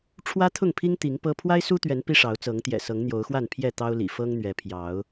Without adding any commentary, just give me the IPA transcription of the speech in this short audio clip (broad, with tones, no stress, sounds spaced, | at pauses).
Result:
ʈ͡ʂʰ w ä˦ t̪ʰ ʊ˥˨ ŋ pʰ i˦ ŋ t̪ i˨˦ ŋ p ɤ˦ pʰ w a˦ ɪ̯ s u˦ t̪ ɥ ɛ˨˦ n p i˦ ʂ ɑ˨˦ ʊ̯ t͡s ɤ˨˦ ŋ t̪ j ɛ̰˨˩ s ɤ˨˦ ŋ n̪ j o˨˦ ʊ̯ x w a˥˨ n pʰ j ɛ˥˨ t̪ ɑ˦ ʊ̯ l ḭ˨˩ f ɤ˦ ŋ n̪ ɥ ɛ˨˦ pʰ j ɑ˨˦ ʊ̯